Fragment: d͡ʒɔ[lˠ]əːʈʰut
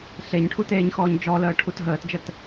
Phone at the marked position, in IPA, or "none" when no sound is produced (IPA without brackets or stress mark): l